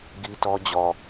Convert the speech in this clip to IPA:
ɡi˦tɔ˦ d͡ʑɔ˨

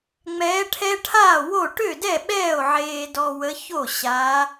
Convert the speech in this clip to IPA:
ŋ͡mɛː˨˦ʈʰɛ˦ʈʰaː˥˩wo˥˩ ʈø˥˩dɛ˥˩ ɓɛː˥˩o̯ʕeː˨dɔ˨wə˨˦ ço˥˩ɕaː˨˦

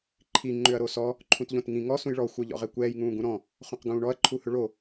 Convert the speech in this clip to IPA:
ǃʰi ŋ͡ǃʏɐ̯ɾosɔ | ǃʰũtʎõtŋĩ ŋɔ sũjɭɔ xʷœʎɔ̰ʁɛkʷɛːj ŋũːɡũɾɔ̃ | χõqɡũːɳɔɐ̯ ǃʰuhʏɭo

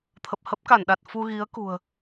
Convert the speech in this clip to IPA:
t̪ʰə˨˩p̚hə˦˥p̚ka˧˩nɗa˨˩t̚ fu˧ɣi˨˦ə̯ kṳ˨˩ə̯

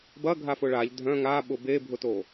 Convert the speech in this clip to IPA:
bɐɡʱafʊ ɭaʎ dʱœ̃ ŋaɓʊ bebʱʊto

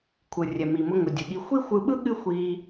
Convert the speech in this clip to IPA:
kʷʰɯ˨rʲɛ˨mi˨mʊ˧ ŋʊ˨dʲɯ˨ɠi˧ xʷi˦xʷɯ˧ɓɯ˦ ɠɨ˦xʷi˧

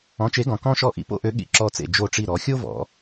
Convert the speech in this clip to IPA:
ɔ̃˨˥t͡ʃe˨˥ɡɔ̃˩˧ kɔ̃˥ʃɔ˦˨ ʔḭ˨˥po̰˥ʔø˨˥ ɠḭ˦˨ǁɔ˦˨t͡sḛ˦˨ d͡ʒo˦˨ʈ͡ʂi˦˨ ɾɔ˩˧xʲo˥vɔ̰˩˧

